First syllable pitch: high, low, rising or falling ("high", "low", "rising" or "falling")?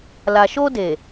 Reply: low